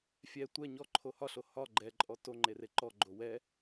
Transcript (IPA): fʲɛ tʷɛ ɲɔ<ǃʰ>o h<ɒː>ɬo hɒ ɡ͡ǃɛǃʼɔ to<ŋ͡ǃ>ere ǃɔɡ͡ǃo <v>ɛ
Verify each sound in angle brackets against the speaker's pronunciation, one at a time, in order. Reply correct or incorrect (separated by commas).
correct, incorrect, correct, incorrect